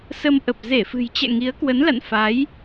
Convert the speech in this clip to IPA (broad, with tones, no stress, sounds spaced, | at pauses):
s ə˧ m ʔ ə˨˩ p̚ z e˧˩ f ɨ̤˨˩ j t͡ɕ ɛ̰˧˨ ŋ i˨˦ ə̯ k w ə˨˦ n l a̰˧˨ n f a˨˦ j